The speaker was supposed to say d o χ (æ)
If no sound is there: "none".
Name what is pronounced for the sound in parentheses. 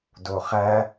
æ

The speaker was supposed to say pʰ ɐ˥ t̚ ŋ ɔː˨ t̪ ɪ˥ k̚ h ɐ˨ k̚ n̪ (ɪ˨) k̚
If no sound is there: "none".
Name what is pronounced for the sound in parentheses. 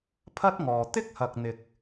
ɪ˨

